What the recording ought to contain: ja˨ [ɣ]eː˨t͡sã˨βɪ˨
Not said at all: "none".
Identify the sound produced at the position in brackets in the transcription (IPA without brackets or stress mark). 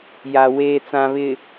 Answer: w